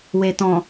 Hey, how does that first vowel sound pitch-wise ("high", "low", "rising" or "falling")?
low